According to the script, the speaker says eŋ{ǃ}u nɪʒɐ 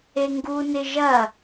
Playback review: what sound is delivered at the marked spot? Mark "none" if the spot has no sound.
ɡ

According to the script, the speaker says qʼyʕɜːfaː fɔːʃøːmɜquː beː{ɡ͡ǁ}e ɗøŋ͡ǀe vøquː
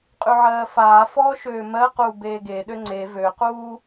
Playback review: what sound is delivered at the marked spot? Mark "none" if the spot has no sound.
ɡ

